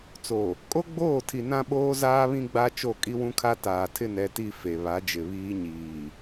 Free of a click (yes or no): yes